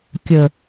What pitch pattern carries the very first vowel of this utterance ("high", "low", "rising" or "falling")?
low